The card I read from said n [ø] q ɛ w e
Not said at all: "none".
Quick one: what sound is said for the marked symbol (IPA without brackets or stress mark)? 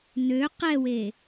ø